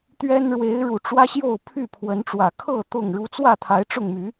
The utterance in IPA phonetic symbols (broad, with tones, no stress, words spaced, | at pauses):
t̪ɥɛ˦n ɻwe˨˦ɪ̯ ɻu˨˩ ʈ͡ʂwä˦ɕjo˥˨ʊ̯ pʰy˥˨pʰwə˨˦nʈ͡ʂwä˨˩ kʰɤ˥˨ t̪ʊ˥˨ŋ ɻu˨˦t͡swä˥˨t̪ʰa˨˦ɪ̯ ʈ͡ʂʊ˥˨ŋmy˨˦